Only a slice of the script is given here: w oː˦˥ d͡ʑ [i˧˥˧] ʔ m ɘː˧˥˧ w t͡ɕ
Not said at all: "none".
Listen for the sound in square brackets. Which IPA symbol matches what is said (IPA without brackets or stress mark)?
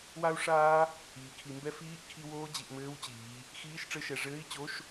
i˩˧